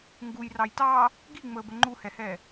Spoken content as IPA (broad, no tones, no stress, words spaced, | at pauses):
ŋɡuj rɑjtɑː | ɡiŋ͡məːbə ŋ͡ǃuhɛhɛː